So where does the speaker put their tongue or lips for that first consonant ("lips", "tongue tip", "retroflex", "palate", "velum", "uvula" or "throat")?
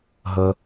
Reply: throat